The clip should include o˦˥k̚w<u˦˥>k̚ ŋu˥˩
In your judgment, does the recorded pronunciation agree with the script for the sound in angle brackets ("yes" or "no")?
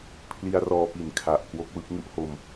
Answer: no